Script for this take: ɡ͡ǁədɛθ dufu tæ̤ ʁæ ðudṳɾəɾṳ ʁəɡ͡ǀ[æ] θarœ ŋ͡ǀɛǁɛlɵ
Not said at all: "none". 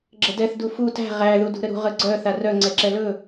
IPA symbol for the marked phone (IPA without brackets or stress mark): œ